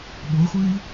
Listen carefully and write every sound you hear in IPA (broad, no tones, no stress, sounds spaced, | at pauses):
ɓ o χʷ ɯː i̯